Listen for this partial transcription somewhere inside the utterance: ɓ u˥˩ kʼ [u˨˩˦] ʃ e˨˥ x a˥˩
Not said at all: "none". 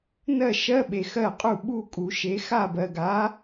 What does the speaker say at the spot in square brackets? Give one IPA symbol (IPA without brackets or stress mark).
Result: u˨˩˦